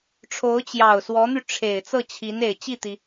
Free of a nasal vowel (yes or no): yes